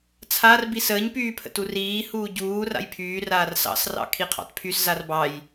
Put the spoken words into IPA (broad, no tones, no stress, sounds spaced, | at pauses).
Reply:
t͡sʰ a r b i s əː ɲ p yː pʰ ə̰ t u r iː h uː ɟ uː r a̰ j pʰ yː r aː r s ɑ̰ s r ɑ̰ kʰ i qʰ ɑ̰ t pʰ y s z a r b ɑ j